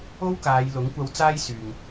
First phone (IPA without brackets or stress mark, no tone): o